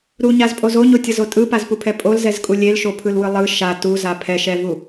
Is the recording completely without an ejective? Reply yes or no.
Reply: no